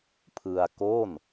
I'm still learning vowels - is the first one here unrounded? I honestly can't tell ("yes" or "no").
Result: yes